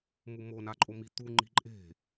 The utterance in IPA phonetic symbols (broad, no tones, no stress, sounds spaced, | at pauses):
m u m o n a ǃʼ o m i t̪ u ŋ͡ǃ i̤ ǃʼ e̤